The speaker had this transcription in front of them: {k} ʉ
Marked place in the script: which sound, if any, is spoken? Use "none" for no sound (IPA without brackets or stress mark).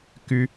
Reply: k